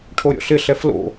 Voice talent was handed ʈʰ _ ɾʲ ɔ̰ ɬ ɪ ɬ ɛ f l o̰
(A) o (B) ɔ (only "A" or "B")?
A